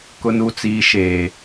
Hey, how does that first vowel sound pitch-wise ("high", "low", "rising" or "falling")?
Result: low